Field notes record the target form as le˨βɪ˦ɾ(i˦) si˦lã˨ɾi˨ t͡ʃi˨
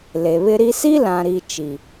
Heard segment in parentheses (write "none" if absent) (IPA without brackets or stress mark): i˦